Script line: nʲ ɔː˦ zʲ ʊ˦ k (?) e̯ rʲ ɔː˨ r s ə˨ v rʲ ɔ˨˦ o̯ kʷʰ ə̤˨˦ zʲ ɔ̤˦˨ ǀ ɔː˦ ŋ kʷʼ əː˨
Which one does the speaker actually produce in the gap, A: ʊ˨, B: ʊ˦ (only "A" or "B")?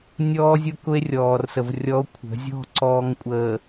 B